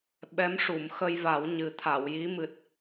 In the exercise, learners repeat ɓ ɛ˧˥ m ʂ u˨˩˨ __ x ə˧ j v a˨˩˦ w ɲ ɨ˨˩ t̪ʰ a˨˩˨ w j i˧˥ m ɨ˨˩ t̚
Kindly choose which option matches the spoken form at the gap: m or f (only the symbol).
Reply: m